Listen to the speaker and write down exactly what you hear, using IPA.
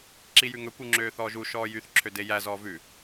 ǁ i j ʉ ŋ ɵ kʷ ʉ ŋ͡ǁ øː θ ɔː ʒ u ʃ ɔː j y θ ǁʰ ø d e j æ z ɔː v ʉ

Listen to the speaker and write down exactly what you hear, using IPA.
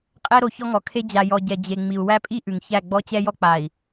qʼ ɛ˦ ɾ o˨ ç ɔ˦ ŋ ɔ˨ kʰ e˦ d͡ʑ a˨ j ɔ˨ ɟ ɛ˨ d͡ʑ e˨ ŋ͡m i˨ u̯ w æ˦ pʼ i˦ ʔ ʉ˨ ŋ ç æ˦˨ ɡ͡b ɔ˦ t͡ɕ ɛ˦ j ɔ˦ k͡p a˨ i̯

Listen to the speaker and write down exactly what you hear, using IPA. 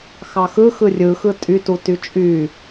x ɑ x ɯ x ɯ rʲ ɯ x ɯ tʼ y t u t y t͡ʃʼ y

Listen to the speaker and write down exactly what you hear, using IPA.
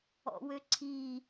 ɔ̰ w ø ǀʰ i

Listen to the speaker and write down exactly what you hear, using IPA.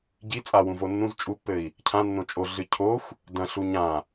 ɟ i t͡sʼ a w ũ v o nː ũ z t͡ʃʼ u pː ɘ i̯ | cʰ ã nː õ t͡ʃʼ o ɮ ɨ cʰ o xʷ | d ɐ̃ ɬ u ɲ ã

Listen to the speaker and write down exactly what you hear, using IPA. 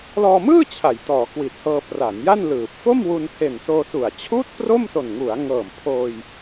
l ɔː˧ m ɯː˥˩ t͡ɕʰ a˩˦ j t ɔː˩˦ k w i˨˩ t̚ h ɤː˧ p r a˩˦ n j a˥˩ n l ɯː˨˩ p̚ f o˥˩ m w u˧ n h e˨˩ n s oː˧ s u˨˩ a̯ t͡ɕʰ uː˥˩ t̚ p r o˥˩ m s o˨˩ n ŋ u˩˦ a̯ ŋ ɤː˨˩ m pʰ oː˧ j

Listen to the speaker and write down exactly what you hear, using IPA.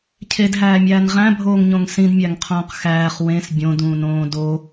cʰ e d ɦ æː mʲ æː n ʁ æ̃ bʱ oː ŋ ɲ õ ŋ s ĩ d mʲ æ ŋ qʰ õː q x æː χ w ẽ s bʲ õ d ũː n õː d o

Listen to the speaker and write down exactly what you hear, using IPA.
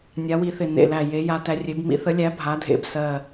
nʲ a˨˥ w i˨˥ θ ɪ˧˩ n ḛ˧˩ l æ˧˩ j e˨˥ j a˨˥ t æ˨˥ rʲ e˨˥ b m ḭ˨˥ θ ə˨˥ lʲ æ˨˥ bʱ a˨˥ dʱ ḛ˧˩ b s ɜ˧˩

